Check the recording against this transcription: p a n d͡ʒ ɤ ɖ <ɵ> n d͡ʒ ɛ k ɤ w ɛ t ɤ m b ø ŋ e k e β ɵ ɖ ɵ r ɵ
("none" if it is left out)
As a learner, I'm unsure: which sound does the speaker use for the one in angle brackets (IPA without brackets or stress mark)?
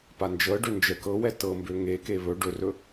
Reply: ø